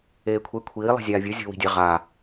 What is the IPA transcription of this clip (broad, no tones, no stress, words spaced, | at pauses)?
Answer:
eːkʷʰe kʷʰiː lˠi̤zʲaːvʲɯ zʲo̤wi̤dʲɛ ʁa